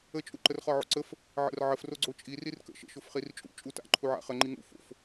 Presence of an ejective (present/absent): present